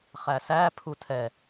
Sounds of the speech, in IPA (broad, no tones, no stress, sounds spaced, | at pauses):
χ æ s æ pʰ u tʰ ɛ